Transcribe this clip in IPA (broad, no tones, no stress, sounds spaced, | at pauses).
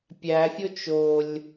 pʲ æ fʲ o t͡ʃ o lʲ